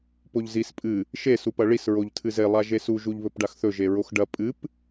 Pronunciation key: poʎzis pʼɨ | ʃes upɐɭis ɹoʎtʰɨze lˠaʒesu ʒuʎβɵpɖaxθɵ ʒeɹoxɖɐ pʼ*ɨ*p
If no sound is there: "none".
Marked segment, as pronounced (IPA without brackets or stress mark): ɨ